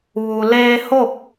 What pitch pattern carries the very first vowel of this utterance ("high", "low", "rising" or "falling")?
low